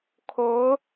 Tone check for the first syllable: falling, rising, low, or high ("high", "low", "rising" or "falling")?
rising